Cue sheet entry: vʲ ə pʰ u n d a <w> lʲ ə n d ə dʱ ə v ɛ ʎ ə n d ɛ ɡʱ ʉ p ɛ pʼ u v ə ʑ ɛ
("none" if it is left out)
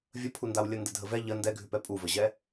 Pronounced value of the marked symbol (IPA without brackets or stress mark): w